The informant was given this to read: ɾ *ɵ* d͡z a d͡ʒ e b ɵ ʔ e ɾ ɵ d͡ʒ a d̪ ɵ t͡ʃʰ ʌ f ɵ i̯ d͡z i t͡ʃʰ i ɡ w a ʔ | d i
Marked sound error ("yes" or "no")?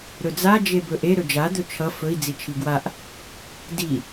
no